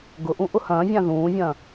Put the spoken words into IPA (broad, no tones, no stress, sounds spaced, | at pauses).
ɡ ʊ ʔ ũ ʔ ʊ h ɐ̃ː vʲ ã ð ũː vʲ ɐ̃ː